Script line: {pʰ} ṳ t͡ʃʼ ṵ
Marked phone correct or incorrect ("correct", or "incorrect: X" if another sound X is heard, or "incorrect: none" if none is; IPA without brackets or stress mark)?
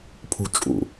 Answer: correct